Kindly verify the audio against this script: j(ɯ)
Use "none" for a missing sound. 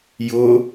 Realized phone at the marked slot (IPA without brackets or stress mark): ʊ